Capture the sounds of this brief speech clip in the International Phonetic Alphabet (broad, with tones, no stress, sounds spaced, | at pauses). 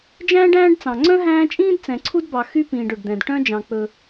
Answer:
d͡ʒ æ̃ː˥ ɖ æ̃ː˥ ɖ t͡s ɑ̃˨ ŋ͡ǀ œ̃˥ ɦ æ̃ː˦ t͡ʃʼ ĩː˥ d t͡s ɛ̃˨ ǀʰ u˦ d b ɑ˨ x y˦ p ĩː˨ ɖ ɵ˩ ɖ d̪ ɛ̃˩ d ʈ œ̃˦ d͡ʒ ɑ̃˨ k͡p ɵ˨